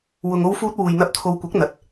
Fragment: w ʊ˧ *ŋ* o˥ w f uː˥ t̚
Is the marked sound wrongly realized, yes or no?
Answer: no